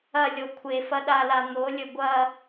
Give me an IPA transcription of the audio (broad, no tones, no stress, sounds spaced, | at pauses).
ɐ lʲ o kʷʰ e f ɐ ɗ a l a n̪ o lʲ ɵ ɡʷ ɐ